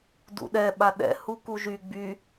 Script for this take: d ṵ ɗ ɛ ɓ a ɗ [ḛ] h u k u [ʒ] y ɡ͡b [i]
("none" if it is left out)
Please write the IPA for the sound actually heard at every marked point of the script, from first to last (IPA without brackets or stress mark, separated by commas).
ɛ̰, ʒ, y